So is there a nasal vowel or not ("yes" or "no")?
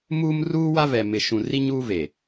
yes